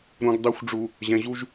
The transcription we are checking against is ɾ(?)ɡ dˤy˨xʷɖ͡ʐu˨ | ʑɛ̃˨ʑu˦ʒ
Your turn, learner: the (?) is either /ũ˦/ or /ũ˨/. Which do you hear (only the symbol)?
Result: ũ˨